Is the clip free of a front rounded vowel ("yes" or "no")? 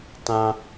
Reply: yes